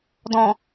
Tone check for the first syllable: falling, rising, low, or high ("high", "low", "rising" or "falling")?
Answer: low